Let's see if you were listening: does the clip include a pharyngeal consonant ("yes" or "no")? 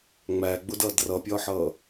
yes